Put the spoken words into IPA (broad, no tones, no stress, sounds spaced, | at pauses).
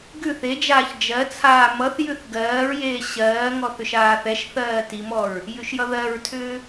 ɡ ʉ θ e d͡ʒ aː ç d͡ʒ ɜ t͡sʰ aː m ʌ θ j ʉ θ ɡ ɜː ɹ j eː ɕ ɜː ŋ ɔ θ ʏ ʃ aː θ ɛ ʃ θ ɜː t i m ɔ ɹ | j ʉ ʃ j ʌ ð ɜ ɹ tʰ ʏː